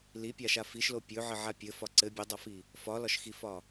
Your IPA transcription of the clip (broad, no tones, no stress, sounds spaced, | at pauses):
l i pʲ a ʃ a f i ʃ l o pʲ ɵ ʕ ɘ ʕ a pʲ ɘ f ɒ ǀ ɘ bʲ ɘ dˤ a f i | f ɒ l ɒ ʃ x i f ɒ